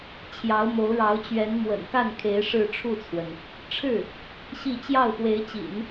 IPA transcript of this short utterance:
t͡ɕʰ j ɑ˧˥ ʊ̯ m o˧˥ ʊ̯ ɻ ɑ˧˥ ʊ̯ t͡ɕ ɥ ɛ˧˥ n m w ə̰˨˩ n k a˥˩ n kʰ e˧˥ ɪ̯ ʂ ɻ̩˥˧ ʈ͡ʂʰ u˥˩ t͡sʰ w ə˩ n | ʈ͡ʂʰ ɻ̩˥˩ | ɕ i˥˧ t͡ɕ j ɑ˥˩ ʊ̯ x w e˧˥ ɪ̯ t͡ɕ ḭ˨˩˦ n

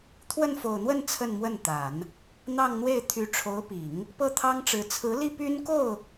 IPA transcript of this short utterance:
t̪ʰ w ə˥˩ n f o˨˩ ʊ̯ n̪ w ə˥˧ n t͡sʰ ə˥˧ n m w ə˥˩ n t̪ a˨˩˦ n | n̪ ɑ˥˧ ŋ n̪ w e˥˩ ɪ̯ t̪ʰ y˧˥ ʈ͡ʂʰ o˧˥ ʊ̯ p i˨˩˦ ŋ | p ɤ˥˩ t̪ʰ ɑ˥ ŋ ʈ͡ʂ ɻ̩˧˥ t͡sʰ ɹ̩˧˥ l i˥˩ p y˥ n k o˥˩ ʊ̯

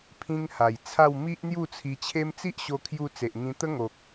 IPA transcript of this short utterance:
pʰ ĩ˧ ŋ h a˨˩ j t͡sʰ a˥˧ w m i˦ ʔ n̪ j u˥˧ t͡sʰ i˧ t͡ɕʰ e˦ m t͡s i˦ ʔ ɕ o˧ kʰ j u˧ t͡s e˨ ʔ ŋ ĩ˧ t̪ ə˦ ŋ o˨ k̚

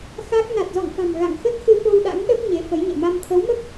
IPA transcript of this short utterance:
x a˦˥ k̚ n a˨˩ t̚ z ɔ̰˧˨ ŋ f a̤˨˩ m ɣ a̰˧˨ ŋ x ə˦˥ t̚ x ɨ˧ f o˧ w ɗ a̰˧˥ ŋ ɗ ə˦˥ p̚ ɲ e˨˦ f ə˨˦ j ɲ ɛ̰˧˨ m a˧ m t̪ʰ ə˨˦ w m ə˦˥ p̚

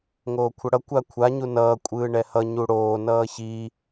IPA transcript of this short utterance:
ŋ oː kʷʰ ʌ ɽ ʌ kʷ a kʷʰ a ɲ u n ʌː kʷʼ ɯː ɳ ɛ h ʌ ɲ u ɽ oː n ʌː ç i

